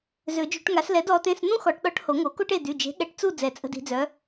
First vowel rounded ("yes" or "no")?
yes